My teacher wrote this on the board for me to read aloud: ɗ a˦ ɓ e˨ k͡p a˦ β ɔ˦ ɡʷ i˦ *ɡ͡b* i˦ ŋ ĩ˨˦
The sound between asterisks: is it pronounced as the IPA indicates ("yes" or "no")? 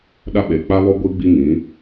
yes